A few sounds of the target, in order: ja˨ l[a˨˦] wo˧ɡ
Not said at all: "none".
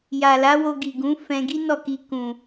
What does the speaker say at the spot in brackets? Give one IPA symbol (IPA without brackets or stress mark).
a˨˦